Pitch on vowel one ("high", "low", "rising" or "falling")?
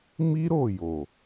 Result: high